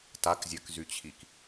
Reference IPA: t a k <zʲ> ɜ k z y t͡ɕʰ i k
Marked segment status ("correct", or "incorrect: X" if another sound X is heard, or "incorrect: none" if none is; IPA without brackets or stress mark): correct